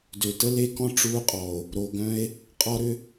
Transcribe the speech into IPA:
d ø˨ t ə˦ l e˦ k ɔ̃˦ ʈ͡ʂ uː˦ qʼ ɔ˨ o̯ | ɾ o˨ ɡ œ̃˦ e̯ | qʼ ɔ˦ ɾ ʏ˦

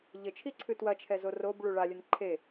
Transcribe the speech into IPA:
ʎ ɘ t͡ʃʰ i ǀʰ ɨ t w ɐ t͡ʃʰ ɛ z o r o b ɭ u ɭ a lʲ ɘ n ǃʰ e

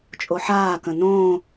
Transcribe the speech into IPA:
t͡ʃʼ o ħ aː k ə̃ n õː

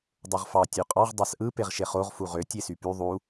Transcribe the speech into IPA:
dˤ o ʁ f ɑ tʲ ø qʼ ɑ ʁ dˤ ɑ s ʔ ɯ p e ʁ ʃ e χ o ʁ f u ʁ ø tʲ e s y p y ðˤ u

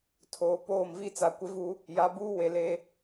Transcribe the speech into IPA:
tʰ oː˨ p oː˦˨ m v i˦ t͡s a˨ kʷ ɪ˦ v u˦ | j a˨˦ b uː˦ w e˨ l e˦

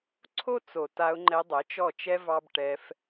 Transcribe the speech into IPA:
ǀʰ o˦ t͡s o˨ t a˧ ʊ̯ ŋ͡ǃ ɛ˧ dˤ ɜ˨˦ t͡ʃ ɔ˦˨ t͡ʃ ɛ˦ v ɑ˦ b ʈ ɛ˧ f

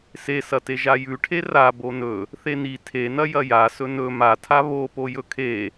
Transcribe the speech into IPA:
s e s ɐ t e ʒ a j ʉ ʈʰ e r a b o n ɵ | θ e n i tʰ e n ɐ j ɐ j a s ɵ n ɵ m a tʰ a β o p o j ɵ kʰ e

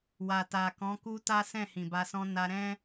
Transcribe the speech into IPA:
w a˨ t a˨ k ɔ̃˨˦ k u˦ t a˦ s ɛ̃˦˨ h ĩ˨ b a˧ s ɔ̃˦ n a˧ ɾ ɛ̃˦

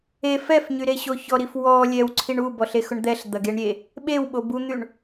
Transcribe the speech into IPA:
e f ɛ f ɲ y ɾ e ɕ o ç ɔ ɾ i f w ɔ lʲ ɛ w ǀʰ i ɳ u b ɔ ɬ e x ʊ ɳ d̪ ɛ ɬ d̪ ɐ ɡ e ɳ ɾʲ e | ɓ e w ɓ o b u n̪ y ɳ

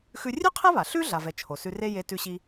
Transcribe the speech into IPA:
x ʉ˧ rʲ ʉ˥ qʰ ɛ˥ β a˩ ɬ ʉ˥ ɮ a˩ v ɛ˩ t͡ʃʰ o˩ s ʉ˧ r e˥ j e˧ t ʉ˧ ɕ i˧

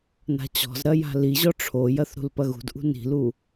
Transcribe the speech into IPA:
n a̤ t͡ɕ ɔ̤ z ɾ ɐ j a̤ l i ʑ ɔ ʈ͡ʂʰ o j ɐ θ ɾ ṳ l p ɐ ɣ ṳ d ʔ ṳ n i̤ l u

